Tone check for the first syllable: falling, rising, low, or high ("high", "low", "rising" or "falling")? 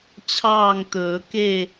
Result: falling